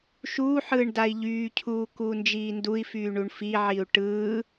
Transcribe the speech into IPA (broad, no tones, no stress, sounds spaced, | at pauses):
ʃ uː ħ ɯː ɳ d a i̯ ʎ yː cʰ uː k uː n d͡ʒ iː n d u i̯ f yː ɳ u ɳ f i ʕ i u̯ ʈ ɯː